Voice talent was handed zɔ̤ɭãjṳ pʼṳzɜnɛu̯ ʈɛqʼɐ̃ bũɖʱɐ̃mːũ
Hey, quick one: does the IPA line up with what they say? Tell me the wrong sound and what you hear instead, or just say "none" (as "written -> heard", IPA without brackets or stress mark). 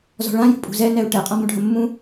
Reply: ɜ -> ɛ